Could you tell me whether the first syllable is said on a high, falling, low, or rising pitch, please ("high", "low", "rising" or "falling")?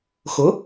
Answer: rising